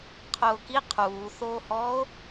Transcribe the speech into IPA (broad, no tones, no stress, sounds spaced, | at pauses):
qʰ ʊː k i qʰ uː θ oː h ɔː o̯